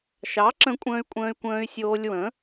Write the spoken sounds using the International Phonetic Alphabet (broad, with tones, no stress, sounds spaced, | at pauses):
ʃ ɑ˨˥ ǁ ə̃˧ kʷʼ ə̃ː˧ y̯ kʷʼ ə̃ː˧ y̯ kʷ ə̃ː˧ y̯ sʲ oː˧ lʲ w ə̃˨˥